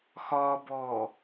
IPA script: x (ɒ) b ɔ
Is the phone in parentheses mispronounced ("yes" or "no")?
no